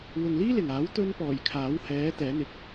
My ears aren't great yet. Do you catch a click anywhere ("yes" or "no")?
no